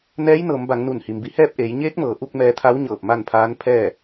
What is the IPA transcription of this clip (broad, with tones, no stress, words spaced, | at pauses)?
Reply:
nɛː˧˥jnɤː˩˧mba˩˧ŋ nu˧˩nhi˩mbi˧hɛː˥˨p̚ ʔeː˩˧jɲeː˧˥k̚mɤː˩˧ʔu˧k̚ mɛː˧t̪ʰa˧˥wɲɤː˧˩p̚ ma˥˨npʰaː˧˥n pʰɛː˥˨